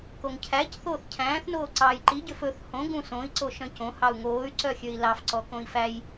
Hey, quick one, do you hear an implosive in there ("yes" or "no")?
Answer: no